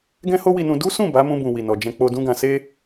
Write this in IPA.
ɡ ɛ̃˦ h o˦ w i˧ n ũ˧ d u˦ s ũ˦˨ b a˨˦ m ũ˧ b ũ˨ w i˨ n ɔ˨ d͡ʒ ɛ̃˧ k͡p o˧ d ũ˦ ɡ ã˧ s e˦

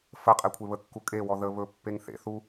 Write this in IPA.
f ə qʼ e kʷʰ e β ə kː u kʼ e w ɔ ð ə β ɵ pː e ŋ θ ḛ θ u

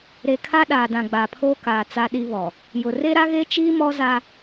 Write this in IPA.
ɾ e˨ kʰ a˦ ɗ aː˨ d ã˨ ɡ͡b aː˨ pʰ oː˦ k aː˨ t͡s a˦ ɗ i˦ β ɔ˨ | j ʊ˨ r e˦ ɾ a˦ ɣ e˦ t͡ʃ iː˦ m ɔ˦ z a˦

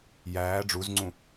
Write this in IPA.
j æː ɖ͡ʐ u z ŋ͡ǀ ũ

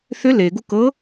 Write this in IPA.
θ ʏ l e ɡ u k ɤ

